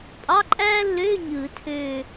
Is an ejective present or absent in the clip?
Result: present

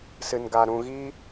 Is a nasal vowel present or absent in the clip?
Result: present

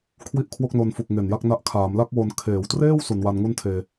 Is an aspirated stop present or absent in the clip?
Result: present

